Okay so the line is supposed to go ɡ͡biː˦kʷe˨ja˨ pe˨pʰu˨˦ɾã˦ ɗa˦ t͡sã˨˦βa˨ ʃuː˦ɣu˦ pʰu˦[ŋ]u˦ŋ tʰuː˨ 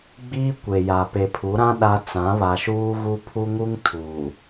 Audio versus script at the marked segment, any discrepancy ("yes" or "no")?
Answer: no